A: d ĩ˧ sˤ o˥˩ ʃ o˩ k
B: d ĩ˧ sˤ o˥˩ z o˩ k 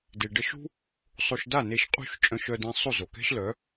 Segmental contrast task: B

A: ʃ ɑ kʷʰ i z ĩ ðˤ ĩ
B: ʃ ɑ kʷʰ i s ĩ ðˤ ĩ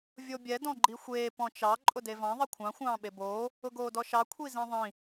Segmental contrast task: A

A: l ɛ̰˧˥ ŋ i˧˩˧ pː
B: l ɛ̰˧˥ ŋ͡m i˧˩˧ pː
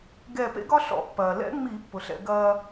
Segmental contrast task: B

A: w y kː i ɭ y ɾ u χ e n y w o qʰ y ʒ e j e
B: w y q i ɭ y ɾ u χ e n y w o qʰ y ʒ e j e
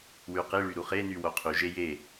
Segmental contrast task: B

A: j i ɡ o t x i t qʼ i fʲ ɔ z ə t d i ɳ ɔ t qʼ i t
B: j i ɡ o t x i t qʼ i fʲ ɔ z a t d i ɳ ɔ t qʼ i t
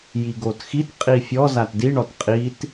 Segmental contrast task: B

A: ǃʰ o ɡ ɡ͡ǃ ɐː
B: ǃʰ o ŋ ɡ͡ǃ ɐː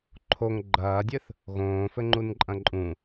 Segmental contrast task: B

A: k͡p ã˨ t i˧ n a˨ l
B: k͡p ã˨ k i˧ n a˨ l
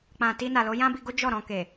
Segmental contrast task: A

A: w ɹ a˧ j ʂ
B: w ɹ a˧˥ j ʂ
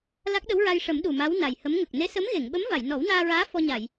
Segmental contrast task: A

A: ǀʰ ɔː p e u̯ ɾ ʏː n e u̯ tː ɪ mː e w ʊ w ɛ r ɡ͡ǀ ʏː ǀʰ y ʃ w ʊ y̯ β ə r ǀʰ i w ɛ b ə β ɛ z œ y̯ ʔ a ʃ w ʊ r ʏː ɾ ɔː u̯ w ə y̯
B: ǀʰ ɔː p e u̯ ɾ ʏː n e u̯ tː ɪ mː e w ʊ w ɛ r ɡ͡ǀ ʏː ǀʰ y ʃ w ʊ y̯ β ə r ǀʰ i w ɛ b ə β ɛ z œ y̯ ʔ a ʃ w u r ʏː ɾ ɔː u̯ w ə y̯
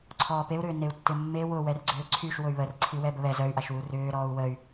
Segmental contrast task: B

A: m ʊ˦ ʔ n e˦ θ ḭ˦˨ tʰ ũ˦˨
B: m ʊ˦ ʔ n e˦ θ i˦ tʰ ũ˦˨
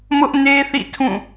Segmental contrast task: A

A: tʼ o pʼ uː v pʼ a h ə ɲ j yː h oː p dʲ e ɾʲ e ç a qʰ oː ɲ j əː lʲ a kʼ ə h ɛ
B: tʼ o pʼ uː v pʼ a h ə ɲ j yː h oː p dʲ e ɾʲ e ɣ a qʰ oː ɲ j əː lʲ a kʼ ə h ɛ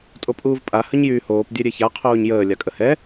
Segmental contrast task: A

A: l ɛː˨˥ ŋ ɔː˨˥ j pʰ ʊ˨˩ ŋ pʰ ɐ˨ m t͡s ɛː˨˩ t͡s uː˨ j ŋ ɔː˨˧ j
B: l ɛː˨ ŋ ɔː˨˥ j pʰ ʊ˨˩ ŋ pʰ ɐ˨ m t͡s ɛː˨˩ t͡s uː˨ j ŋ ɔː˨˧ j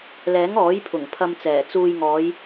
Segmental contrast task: A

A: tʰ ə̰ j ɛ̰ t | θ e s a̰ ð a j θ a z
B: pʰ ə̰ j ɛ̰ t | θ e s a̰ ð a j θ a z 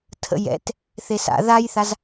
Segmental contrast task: A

